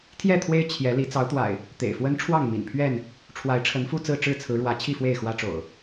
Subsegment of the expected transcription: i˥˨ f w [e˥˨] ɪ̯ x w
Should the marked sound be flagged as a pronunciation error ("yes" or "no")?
no